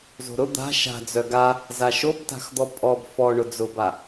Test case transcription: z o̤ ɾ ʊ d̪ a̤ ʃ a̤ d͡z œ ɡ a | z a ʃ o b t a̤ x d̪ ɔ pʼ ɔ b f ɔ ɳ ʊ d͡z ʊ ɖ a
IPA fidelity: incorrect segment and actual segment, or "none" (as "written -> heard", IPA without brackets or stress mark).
ɖ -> b